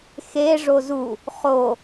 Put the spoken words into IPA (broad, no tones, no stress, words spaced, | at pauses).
xe ʐozu | χo